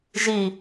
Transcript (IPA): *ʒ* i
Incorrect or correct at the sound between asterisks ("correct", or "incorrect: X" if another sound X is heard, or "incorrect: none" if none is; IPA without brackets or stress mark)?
correct